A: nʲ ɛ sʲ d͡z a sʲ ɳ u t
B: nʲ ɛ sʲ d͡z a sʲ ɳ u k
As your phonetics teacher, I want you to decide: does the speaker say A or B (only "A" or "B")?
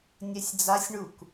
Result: B